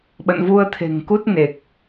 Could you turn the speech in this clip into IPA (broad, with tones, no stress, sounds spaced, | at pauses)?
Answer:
ɓ ə̰˧˨ n v u˧ ə̯ t̪ʰ e̤˨˩ ŋ k u˦˥ t̚ n e˨˩ k̚